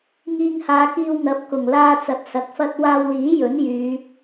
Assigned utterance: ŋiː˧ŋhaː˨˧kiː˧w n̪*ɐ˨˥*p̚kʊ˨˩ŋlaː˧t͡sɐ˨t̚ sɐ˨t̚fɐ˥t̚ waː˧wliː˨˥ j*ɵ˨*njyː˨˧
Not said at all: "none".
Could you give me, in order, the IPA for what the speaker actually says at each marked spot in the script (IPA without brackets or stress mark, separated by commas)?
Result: ɐ˨˥, ɵ˨˥